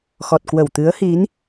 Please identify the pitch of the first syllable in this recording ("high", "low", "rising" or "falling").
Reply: low